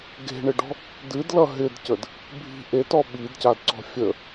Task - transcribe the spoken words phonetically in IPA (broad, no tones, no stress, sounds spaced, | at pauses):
ɡ e̤ ɳ ɪ ɖ ɔ̤ | d ɨ d l ʌ ɦ ɪ d c ə d | bʱ i̤ ʔ e t ɔ ɓ i d c a d ǀ ɔ̤ fʲ ə